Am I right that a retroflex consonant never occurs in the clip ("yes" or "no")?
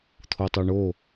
no